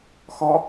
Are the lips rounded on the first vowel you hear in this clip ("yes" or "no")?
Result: yes